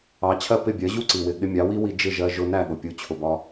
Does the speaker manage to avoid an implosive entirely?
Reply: no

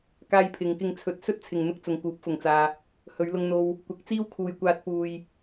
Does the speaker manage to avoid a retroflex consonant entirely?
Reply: yes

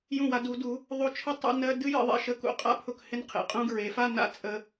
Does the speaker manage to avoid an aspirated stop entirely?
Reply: no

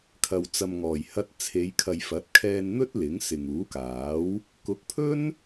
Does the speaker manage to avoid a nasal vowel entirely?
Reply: yes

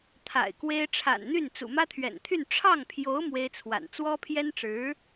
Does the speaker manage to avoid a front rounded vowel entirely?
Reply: no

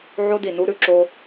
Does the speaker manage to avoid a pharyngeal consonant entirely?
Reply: no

